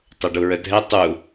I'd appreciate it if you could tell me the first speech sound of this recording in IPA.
tˤ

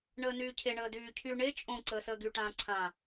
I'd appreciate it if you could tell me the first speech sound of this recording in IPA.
ɳ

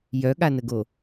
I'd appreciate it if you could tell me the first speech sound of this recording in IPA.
j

